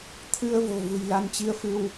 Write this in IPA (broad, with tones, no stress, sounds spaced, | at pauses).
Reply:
t̪ʰ ɨ˧ ə̯ v o̤˨˩ v ṳ˨˩ j l a˧ n t͡ɕ i˧ ə̯ f ɨ˧ w